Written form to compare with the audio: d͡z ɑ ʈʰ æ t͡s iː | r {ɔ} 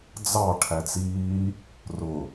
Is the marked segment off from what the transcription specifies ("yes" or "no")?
yes